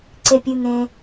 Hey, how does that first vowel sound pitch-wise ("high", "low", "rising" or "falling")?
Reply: high